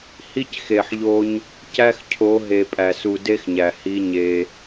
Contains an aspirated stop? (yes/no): yes